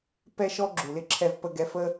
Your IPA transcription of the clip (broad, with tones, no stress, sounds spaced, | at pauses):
p ɛ˥ ʃ ɔ˥ ɡ͡ǁ u˩ l ɪ˥ ǁʰ ɛ˧ v p ə˧ ɡ ɛ˧ f ə˥